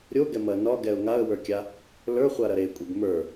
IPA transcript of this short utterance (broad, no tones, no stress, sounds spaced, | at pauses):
ɾʲ o ɡ ɛ m ɐ n ɒ ɡ ɛ ʊ̯ ŋ a ə̯ w ə˞ kʲ a | l ə˞ χʷ a ɾ ɐ ɾ e kʷʼ e ɡ m ə˞